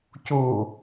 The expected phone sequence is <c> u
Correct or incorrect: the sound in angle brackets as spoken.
correct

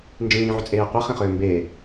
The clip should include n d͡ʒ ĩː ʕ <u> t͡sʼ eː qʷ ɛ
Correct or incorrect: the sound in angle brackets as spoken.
incorrect: ʏ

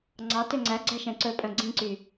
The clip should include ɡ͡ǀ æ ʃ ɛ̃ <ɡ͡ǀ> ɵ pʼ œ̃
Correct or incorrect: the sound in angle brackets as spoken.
incorrect: ǀ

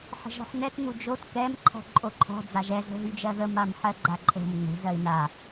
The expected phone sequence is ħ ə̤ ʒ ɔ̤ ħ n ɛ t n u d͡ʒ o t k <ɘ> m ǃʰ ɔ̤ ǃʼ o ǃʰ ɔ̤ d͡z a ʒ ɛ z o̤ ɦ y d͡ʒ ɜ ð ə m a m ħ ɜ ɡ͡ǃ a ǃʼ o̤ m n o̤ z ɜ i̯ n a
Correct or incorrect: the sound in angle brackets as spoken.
incorrect: ɛ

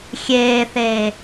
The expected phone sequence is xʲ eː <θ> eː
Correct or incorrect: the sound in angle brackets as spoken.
correct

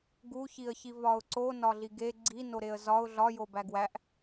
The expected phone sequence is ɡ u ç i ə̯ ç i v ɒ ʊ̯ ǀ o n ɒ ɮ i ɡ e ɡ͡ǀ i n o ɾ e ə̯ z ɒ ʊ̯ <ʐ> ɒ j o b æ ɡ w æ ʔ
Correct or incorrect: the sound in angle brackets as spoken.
incorrect: ɮ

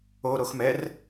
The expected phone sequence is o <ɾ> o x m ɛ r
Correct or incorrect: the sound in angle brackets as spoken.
correct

